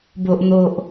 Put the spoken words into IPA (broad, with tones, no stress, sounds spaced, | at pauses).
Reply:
b o˨ ʔ n̪ o˨ ʔ